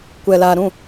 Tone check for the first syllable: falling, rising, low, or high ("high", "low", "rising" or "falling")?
low